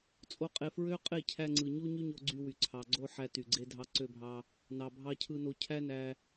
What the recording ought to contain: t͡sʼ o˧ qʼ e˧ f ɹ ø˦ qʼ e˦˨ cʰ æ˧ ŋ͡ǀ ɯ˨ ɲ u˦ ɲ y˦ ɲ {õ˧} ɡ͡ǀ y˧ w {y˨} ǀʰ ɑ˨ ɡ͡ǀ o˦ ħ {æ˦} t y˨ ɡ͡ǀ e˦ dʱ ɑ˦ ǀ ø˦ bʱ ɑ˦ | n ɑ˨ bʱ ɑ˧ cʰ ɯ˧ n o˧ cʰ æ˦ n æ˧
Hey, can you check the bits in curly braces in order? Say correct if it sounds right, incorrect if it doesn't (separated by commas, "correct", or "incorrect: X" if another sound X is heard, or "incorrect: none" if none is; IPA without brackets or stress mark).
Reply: incorrect: o˧, correct, correct